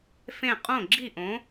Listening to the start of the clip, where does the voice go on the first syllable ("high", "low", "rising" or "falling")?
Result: falling